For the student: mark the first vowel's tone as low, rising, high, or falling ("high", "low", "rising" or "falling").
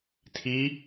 rising